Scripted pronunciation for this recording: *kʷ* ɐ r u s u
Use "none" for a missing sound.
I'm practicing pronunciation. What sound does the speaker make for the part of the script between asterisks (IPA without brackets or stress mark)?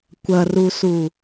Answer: kʷ